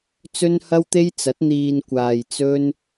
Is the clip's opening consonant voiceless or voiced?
voiceless